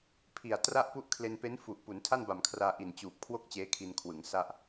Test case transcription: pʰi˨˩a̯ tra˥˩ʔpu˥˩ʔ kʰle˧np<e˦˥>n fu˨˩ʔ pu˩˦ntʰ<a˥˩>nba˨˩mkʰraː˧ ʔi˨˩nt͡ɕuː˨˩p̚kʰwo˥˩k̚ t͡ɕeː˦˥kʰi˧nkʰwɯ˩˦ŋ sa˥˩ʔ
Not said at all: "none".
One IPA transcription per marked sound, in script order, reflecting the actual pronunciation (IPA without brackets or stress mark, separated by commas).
e˦˥, a˥˩